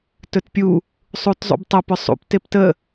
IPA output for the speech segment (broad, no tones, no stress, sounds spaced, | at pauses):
t ɵ t pʲ u | sˤ u t zˤ ṵ b tˤ ə p ʏ sˤ ṵ p t e p t ə